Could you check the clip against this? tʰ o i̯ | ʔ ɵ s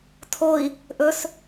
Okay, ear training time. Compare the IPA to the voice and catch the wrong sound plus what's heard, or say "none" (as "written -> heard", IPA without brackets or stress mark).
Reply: none